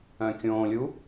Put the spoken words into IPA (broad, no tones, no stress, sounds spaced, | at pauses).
œ̃ kʲ õː lʲ u